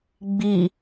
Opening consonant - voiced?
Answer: yes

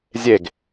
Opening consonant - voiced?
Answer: yes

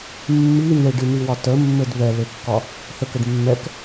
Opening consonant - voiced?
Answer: yes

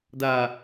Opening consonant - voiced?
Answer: yes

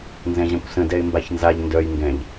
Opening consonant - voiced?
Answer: yes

